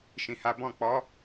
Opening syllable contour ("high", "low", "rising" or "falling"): low